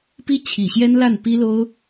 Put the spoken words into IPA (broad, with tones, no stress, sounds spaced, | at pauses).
p i˥ t͡ɕʰ i˨˩ ɕ j ɛ˥ n l a˥˩ n p i˥ l o˥ ʊ̯